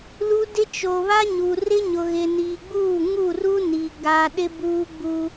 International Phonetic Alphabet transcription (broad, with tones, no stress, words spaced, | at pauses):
lu˦dɪ˦ t͡ʃo˨βa˦ɲu˨rɪ˦ ɲʊ˨ɣɪ˨niː˨ɡ͡buː˦˨ ŋu˦˨ru˦ni˨ ɡa˦ ɗɪ˦buː˦ɡ͡bu˦